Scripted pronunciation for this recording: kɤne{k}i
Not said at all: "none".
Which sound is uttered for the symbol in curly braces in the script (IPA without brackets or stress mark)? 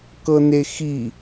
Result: x